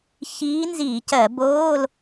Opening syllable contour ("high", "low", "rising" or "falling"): rising